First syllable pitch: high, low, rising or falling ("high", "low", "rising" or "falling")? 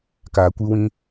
low